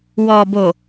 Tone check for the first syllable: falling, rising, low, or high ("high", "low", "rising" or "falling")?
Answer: low